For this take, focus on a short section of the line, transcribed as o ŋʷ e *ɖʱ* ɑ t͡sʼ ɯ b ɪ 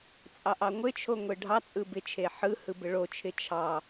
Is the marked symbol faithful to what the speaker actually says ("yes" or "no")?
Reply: yes